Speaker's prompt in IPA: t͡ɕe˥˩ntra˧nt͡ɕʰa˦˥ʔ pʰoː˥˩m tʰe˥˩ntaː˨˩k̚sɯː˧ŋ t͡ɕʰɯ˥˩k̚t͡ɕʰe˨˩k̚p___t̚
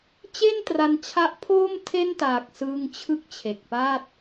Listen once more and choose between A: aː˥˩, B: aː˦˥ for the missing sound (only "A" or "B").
A